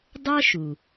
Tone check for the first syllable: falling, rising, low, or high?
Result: high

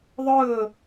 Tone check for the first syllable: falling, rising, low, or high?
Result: falling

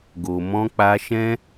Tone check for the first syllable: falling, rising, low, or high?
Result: low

